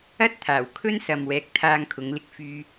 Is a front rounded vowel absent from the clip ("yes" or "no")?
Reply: no